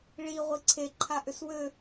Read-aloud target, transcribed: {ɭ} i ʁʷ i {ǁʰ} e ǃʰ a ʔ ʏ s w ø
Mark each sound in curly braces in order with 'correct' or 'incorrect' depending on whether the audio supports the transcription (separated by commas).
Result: correct, incorrect